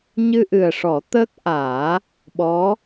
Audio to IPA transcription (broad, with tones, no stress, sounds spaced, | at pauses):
ɲ ɨ˧ ʔ ɨ˨˩ ə̯ ʂ ɔ˨˩˦ t̪ əː˦˥ k̚ ʔ aː˨˩˦ | ɓ ɔ˧˥